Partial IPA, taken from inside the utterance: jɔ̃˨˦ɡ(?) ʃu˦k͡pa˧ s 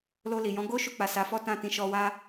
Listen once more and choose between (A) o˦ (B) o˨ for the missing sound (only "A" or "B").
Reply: A